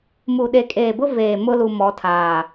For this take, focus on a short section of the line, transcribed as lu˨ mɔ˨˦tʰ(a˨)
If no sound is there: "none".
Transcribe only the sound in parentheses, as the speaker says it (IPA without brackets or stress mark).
aː˨